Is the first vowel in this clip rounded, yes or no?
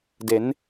no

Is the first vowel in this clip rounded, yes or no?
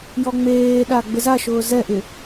yes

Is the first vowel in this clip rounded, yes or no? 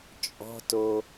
yes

